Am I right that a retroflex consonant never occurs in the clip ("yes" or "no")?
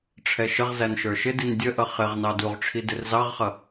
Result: no